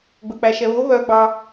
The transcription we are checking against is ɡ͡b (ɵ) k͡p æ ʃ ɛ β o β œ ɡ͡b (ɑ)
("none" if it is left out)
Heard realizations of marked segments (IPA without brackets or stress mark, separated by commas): ɵ, ɑ